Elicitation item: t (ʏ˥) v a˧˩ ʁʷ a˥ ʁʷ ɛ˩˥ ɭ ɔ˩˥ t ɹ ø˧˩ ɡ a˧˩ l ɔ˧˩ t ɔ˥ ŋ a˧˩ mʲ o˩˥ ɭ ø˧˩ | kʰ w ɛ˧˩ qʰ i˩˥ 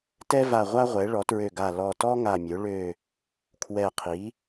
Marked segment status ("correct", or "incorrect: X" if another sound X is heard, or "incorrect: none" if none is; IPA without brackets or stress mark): incorrect: ɛ˥